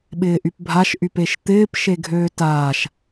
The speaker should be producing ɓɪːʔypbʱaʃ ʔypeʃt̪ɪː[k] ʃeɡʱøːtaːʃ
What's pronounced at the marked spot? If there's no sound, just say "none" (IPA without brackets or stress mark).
p